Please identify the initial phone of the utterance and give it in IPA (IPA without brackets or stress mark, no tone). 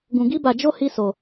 ɡ